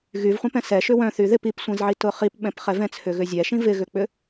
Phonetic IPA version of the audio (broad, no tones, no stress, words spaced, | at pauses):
ɣyvχʷɛ̃pɛ̃ sɛ ʃʏwœ̃ θyðɪp ip sʷɛ̃zʕitʊχip ɓɛ̃pχɛvɛ̃ t͡sʰʏɣʏzʲɛʃĩ vɪɣʏk͡pʏ